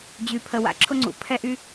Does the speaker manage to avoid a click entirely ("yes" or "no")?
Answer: no